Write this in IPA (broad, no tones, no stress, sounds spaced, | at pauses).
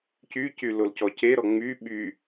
c y c y l o l c ɔ c e ɾ ɔ ŋ͡m y ɓ y